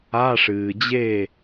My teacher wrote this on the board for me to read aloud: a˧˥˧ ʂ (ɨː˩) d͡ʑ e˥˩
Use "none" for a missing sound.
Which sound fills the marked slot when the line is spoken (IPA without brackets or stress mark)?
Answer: ɨː˩